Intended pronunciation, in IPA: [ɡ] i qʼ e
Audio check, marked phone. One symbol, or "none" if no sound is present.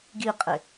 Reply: ɡ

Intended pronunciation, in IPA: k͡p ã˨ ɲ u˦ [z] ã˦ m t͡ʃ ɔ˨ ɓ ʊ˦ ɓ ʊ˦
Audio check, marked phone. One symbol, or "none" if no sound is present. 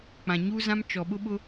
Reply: z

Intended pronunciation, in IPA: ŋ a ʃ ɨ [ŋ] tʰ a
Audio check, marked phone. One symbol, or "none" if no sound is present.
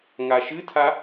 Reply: none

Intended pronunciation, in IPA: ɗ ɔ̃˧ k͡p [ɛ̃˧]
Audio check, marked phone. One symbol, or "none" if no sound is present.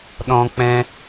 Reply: ɛ̃˧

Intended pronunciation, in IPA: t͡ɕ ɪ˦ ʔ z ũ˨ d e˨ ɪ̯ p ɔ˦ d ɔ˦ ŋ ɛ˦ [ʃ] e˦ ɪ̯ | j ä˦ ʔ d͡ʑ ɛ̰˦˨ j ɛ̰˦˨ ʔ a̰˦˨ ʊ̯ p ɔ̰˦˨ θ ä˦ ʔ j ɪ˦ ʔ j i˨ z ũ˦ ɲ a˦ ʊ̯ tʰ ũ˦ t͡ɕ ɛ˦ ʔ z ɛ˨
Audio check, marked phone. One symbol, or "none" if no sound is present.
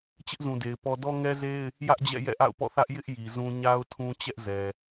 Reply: z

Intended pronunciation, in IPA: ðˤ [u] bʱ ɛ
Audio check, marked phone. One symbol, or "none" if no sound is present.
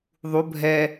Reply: u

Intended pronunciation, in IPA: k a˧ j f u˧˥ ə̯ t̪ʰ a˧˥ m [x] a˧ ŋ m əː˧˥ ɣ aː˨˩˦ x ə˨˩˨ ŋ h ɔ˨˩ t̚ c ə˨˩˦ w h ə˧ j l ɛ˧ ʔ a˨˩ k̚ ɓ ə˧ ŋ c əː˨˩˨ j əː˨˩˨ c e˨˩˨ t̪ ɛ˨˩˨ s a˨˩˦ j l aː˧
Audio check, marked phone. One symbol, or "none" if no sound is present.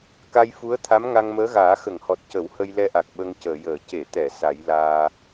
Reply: ŋ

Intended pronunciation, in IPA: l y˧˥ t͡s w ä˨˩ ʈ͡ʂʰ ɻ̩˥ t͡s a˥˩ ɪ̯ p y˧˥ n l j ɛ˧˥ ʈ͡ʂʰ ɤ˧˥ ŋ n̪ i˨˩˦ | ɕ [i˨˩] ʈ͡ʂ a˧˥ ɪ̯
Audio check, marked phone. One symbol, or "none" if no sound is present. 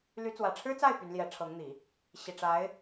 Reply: i˨˩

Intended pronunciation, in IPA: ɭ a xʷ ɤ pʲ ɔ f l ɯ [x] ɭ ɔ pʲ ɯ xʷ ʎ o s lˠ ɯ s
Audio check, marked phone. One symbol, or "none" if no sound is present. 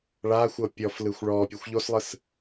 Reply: xʷ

